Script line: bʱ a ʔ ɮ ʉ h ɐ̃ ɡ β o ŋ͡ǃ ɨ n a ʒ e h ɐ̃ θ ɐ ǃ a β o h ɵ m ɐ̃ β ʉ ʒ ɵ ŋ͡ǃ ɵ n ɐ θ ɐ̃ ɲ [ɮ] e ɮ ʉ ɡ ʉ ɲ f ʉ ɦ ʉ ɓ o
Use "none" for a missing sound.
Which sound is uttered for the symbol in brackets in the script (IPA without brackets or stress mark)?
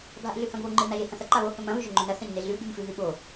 n